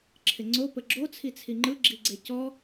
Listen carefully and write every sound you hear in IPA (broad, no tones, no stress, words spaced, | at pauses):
ǁʰɪŋ͡ǀo pəɡ͡ǁo t͡sʰit͡sʰiŋ͡ǃɯ ɡ͡ǁiɡ͡ǀecɔ